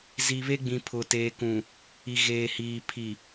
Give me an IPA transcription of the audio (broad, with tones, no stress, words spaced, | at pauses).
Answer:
zi˨βe˦ɡ͡bĩ˨ pʰʊ˨teː˨kũ˨ | i˨ɣeː˨hiː˨ pʰi˨